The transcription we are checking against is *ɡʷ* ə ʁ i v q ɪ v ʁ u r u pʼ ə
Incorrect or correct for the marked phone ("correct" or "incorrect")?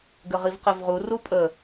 incorrect